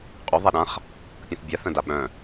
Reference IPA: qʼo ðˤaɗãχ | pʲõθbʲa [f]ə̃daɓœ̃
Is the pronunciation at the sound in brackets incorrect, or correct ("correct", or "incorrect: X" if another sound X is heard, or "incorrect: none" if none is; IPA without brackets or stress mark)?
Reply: incorrect: θ